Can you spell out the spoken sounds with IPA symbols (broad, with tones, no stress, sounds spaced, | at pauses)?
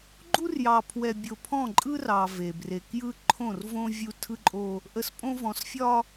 ɡ͡ǃ u˦ r j ɑ˨ pʰ w ɛ˨ bʲ o˨ pʰ ɔ̃˦˨ ǃʼ ɯ˦ r ɑ˨ v e˨ b r e˨ k j ɯ˦ ǃʰ õ˦˨ r v õ˦ vʲ u˦ tʰ ɯ˦ ǃʼ o˦ | ʔ ə˨ s pʼ õ˦ v ɔ̃˨ s fʲ ɒ˦